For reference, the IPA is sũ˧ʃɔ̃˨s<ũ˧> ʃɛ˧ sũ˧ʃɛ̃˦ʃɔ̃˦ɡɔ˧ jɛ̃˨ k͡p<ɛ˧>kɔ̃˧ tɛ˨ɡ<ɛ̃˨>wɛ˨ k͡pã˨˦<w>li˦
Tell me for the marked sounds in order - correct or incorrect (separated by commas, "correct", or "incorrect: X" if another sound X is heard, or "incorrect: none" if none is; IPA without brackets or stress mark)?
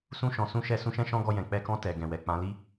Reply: correct, correct, correct, incorrect: none